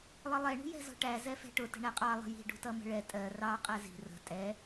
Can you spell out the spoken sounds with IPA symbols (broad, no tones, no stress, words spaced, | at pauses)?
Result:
lˠʌlˠɛ ɳṳjɛ̤zɔ̤ʈæ zɛfɛ̤ʈʊ tə̤ɳæqʼɑ lˠə̤ji̤ ɖṳtʌmə̤ɭɛ tʼɜ rɑ qʼæzi̤ rə̤ tʼɛ